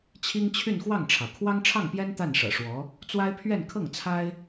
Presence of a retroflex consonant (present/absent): present